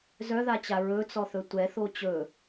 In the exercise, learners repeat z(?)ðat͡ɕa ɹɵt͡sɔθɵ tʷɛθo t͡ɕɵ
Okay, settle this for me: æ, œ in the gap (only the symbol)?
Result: œ